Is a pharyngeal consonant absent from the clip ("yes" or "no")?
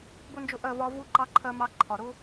yes